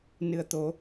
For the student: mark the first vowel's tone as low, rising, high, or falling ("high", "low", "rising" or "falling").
low